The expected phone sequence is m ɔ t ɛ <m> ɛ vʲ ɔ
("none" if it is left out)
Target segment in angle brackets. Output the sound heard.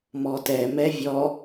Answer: m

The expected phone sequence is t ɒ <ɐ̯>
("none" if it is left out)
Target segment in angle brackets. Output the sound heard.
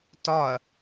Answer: ɐ̯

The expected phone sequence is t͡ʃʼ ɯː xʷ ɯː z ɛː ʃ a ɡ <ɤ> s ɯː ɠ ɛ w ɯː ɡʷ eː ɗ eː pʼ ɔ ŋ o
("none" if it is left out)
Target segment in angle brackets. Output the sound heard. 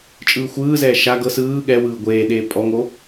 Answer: ɤ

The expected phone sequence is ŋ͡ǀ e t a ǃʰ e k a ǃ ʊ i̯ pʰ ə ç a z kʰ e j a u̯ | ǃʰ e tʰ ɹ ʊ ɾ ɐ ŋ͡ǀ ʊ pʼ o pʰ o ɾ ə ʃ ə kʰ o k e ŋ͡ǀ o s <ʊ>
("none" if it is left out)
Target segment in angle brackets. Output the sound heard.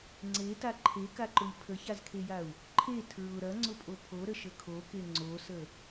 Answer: ə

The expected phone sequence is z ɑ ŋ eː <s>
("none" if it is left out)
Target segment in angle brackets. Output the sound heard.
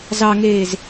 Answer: z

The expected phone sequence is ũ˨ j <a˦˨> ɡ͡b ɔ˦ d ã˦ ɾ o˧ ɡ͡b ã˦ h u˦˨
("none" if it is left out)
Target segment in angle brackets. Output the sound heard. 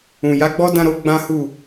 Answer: a˨˦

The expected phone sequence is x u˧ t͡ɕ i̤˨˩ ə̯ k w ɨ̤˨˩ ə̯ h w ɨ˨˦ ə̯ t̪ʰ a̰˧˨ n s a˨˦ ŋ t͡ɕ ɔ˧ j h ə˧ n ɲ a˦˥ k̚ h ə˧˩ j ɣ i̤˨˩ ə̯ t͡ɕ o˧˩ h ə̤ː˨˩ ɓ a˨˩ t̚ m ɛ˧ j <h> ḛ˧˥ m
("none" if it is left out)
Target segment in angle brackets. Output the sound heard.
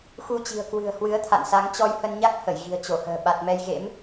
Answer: ɣ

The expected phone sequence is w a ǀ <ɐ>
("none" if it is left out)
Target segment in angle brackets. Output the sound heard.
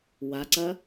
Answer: ɐ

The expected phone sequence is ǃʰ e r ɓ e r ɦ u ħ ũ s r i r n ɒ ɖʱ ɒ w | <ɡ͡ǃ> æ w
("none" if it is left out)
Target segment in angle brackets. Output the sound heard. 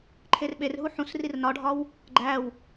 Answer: ɡ͡ǃ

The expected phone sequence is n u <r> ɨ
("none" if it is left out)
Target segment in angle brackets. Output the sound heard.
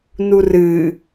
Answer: r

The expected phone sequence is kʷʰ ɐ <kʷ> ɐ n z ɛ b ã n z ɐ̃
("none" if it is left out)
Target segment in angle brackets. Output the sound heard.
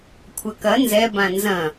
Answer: k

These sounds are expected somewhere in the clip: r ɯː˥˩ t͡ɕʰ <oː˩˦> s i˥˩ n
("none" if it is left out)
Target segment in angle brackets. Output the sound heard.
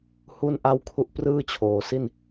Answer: oː˨˩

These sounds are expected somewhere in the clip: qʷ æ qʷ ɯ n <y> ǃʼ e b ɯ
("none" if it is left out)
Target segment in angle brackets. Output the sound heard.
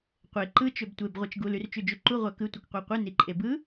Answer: i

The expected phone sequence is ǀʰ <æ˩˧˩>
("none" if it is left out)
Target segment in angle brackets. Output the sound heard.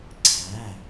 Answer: æ˩˧˩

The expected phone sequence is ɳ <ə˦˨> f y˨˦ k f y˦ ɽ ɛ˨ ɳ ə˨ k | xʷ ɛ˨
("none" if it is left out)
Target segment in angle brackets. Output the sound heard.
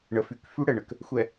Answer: ə˨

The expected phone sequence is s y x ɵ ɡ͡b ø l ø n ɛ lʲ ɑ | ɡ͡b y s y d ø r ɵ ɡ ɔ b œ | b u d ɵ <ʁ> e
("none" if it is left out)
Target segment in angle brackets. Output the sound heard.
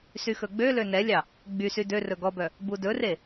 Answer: r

